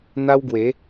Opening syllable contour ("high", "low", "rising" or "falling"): high